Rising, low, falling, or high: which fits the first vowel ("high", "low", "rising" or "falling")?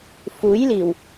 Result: rising